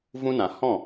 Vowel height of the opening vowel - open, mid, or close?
close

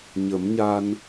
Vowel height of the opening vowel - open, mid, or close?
mid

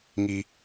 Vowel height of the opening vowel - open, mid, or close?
close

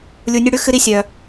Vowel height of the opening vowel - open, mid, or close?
close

